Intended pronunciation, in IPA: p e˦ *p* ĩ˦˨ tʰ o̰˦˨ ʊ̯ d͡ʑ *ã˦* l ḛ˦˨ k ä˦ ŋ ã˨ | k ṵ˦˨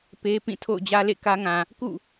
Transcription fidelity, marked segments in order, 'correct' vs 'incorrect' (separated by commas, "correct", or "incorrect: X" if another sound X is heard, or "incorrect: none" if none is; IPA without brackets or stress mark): correct, incorrect: ä˦